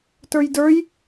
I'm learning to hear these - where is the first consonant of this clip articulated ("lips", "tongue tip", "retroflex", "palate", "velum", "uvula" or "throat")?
tongue tip